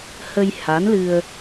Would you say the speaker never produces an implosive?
yes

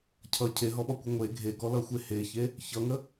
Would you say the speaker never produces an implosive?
no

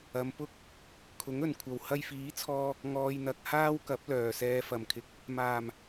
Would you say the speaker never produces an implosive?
yes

